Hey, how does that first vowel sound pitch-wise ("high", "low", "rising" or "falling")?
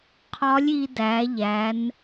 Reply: rising